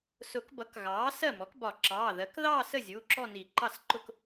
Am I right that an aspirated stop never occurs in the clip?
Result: yes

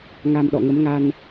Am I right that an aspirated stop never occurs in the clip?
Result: yes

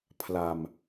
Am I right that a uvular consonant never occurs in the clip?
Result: yes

